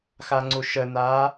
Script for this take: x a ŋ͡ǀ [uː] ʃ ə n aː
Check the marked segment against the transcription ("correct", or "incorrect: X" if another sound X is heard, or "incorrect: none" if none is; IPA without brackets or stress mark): incorrect: u